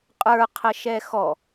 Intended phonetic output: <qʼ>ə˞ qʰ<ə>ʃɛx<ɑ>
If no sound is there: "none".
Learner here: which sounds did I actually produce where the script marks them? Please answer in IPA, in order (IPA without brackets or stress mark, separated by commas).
qʼ, ə, ɔ